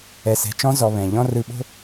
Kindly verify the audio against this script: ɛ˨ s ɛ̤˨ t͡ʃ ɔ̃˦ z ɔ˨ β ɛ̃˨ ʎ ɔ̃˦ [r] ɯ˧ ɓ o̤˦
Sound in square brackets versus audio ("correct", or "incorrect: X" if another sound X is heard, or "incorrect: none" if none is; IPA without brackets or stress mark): correct